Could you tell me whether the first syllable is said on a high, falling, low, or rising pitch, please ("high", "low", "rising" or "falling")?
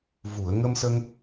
low